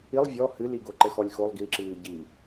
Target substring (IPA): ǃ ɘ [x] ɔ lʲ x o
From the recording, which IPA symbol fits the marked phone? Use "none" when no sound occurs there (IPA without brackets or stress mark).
x